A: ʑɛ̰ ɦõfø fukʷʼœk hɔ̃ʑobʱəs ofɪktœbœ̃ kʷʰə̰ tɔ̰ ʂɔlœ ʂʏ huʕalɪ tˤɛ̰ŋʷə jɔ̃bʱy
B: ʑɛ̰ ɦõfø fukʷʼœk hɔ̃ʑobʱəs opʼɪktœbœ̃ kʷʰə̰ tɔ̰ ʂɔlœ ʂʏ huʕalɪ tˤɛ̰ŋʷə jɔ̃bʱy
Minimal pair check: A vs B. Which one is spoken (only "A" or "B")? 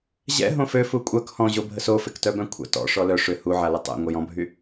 A